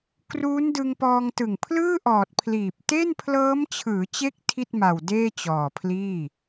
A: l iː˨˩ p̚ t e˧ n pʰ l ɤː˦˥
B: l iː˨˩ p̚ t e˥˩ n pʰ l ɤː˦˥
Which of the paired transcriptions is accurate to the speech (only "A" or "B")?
B